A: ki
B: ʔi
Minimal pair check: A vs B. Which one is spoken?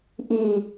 B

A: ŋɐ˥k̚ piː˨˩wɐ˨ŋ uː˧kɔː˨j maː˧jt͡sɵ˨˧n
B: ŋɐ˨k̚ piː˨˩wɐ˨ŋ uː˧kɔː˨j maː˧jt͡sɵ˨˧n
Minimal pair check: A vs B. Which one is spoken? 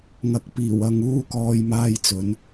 B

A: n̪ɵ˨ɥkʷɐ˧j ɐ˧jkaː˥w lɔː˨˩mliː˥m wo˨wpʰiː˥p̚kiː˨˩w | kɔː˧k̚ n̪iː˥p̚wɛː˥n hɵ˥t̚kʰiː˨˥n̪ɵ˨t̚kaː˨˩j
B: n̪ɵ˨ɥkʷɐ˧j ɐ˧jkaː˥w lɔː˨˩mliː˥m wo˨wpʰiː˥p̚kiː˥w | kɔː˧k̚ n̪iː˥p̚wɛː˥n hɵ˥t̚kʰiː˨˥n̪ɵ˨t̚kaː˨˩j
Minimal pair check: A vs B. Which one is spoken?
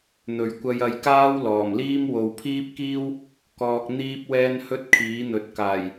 B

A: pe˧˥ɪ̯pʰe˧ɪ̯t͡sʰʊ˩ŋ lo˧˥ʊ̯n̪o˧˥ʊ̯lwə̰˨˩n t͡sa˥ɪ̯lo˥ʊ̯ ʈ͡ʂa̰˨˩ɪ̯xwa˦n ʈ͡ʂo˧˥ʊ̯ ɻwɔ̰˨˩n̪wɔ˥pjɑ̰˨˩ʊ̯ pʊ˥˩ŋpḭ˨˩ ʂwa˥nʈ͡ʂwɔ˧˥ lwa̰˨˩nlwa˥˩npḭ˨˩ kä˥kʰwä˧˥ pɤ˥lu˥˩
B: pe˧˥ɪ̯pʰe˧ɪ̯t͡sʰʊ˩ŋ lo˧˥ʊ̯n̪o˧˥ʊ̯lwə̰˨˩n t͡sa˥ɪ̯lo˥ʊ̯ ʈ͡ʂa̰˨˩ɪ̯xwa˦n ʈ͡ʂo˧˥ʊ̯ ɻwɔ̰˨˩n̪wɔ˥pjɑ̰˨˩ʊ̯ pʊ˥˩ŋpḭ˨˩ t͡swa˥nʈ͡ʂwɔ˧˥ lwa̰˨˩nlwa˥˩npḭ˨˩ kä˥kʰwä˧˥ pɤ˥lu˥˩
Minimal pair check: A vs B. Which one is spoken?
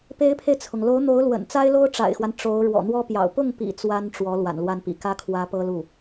B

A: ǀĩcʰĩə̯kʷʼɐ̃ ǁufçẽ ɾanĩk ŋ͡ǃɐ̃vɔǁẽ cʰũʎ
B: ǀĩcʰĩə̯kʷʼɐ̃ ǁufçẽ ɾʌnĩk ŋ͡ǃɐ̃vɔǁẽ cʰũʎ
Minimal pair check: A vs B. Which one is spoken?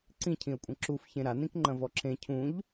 A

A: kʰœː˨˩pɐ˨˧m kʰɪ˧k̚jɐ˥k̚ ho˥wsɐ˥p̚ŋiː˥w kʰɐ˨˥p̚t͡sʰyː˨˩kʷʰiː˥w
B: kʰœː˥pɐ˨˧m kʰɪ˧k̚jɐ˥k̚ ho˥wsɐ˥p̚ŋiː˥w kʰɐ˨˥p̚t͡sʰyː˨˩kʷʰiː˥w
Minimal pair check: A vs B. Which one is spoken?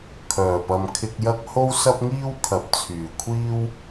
A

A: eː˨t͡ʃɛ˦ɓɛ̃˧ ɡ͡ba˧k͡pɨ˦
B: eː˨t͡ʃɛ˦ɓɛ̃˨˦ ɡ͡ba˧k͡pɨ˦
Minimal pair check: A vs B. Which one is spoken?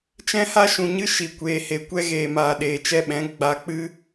B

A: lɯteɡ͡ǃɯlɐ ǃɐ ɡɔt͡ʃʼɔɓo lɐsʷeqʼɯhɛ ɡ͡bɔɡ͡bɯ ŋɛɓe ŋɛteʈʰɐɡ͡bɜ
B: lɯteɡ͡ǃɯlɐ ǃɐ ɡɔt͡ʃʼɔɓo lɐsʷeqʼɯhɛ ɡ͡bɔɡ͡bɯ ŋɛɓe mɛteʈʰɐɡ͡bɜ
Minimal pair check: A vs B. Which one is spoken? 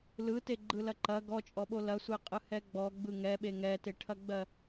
A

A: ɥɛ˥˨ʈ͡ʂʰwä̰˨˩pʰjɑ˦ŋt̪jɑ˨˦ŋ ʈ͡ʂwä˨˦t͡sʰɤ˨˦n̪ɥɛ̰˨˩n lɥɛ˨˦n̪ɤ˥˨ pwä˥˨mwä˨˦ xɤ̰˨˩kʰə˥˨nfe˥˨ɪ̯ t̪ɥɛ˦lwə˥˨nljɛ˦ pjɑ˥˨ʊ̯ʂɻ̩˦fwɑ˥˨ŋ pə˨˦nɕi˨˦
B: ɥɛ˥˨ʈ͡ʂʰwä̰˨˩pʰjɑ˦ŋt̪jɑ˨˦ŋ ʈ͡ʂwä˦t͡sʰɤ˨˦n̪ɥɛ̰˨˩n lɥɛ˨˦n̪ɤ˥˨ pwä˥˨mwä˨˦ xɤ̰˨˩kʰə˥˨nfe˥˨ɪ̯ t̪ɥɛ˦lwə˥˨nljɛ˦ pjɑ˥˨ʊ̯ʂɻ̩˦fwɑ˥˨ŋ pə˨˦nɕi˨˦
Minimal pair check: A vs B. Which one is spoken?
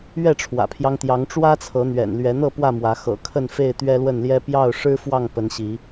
B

